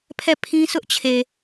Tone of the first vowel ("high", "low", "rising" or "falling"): falling